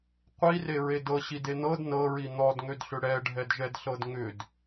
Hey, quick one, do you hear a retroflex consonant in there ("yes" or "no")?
yes